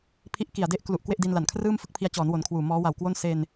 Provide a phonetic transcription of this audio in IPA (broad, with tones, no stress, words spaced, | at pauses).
pʰi˦˥ʔki˨˩a̯de˥˩ʔklu˨˩ʔ kwe˥˩ʔdi˧nla˨˩nkʰrɯː˥˩m fɯ˥˩k̚pʰi˧a̯t͡ɕɔː˩˦n wo˩˦nkʰwuː˨˩ mɔː˦˥wa˨˩wkwo˥˩n se˧n